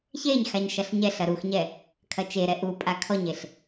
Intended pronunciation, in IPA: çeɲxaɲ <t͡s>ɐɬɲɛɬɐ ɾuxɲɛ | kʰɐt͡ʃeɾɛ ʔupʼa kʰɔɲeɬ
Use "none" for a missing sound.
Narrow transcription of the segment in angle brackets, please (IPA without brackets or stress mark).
ʃ